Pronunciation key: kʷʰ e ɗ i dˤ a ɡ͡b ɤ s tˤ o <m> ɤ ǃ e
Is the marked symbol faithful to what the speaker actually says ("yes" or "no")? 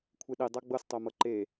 yes